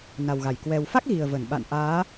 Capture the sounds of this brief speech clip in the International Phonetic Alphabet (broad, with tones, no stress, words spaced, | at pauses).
na˨˩wɣa˧˩j kwɛ˨˩wfa˦˥k̚ɣi˨˩ə̯ və˧˩n ɓa̰˧˨n ʔaː˨˦